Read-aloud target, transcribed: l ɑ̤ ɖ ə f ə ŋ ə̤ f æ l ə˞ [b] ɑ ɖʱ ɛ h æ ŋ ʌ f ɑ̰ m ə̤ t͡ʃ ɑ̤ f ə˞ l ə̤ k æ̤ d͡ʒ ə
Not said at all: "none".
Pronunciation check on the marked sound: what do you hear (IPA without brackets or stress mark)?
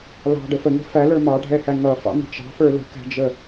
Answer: m